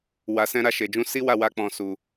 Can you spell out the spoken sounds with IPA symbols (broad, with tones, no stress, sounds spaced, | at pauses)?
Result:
w a˨ s ɛ̃˧ ɾ a˧ ʃ e˨ d͡ʒ ũ˧ s i˦ w a˦˨ w a˧ k͡p ɔ̃˧ s u˧